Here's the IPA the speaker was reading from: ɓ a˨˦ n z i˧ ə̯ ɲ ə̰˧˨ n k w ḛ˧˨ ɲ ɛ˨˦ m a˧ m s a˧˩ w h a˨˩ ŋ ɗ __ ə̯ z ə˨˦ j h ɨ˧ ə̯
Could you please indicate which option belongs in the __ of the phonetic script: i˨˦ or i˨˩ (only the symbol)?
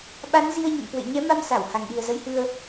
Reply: i˨˩